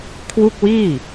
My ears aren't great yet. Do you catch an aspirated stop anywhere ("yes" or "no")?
yes